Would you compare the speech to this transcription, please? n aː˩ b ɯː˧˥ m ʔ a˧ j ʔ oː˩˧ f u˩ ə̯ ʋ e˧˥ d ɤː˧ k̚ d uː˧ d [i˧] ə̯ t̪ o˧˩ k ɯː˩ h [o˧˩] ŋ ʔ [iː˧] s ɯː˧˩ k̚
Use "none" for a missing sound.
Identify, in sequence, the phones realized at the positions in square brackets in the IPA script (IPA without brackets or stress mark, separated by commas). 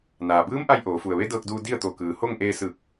i˥˨, o˥˨, eː˧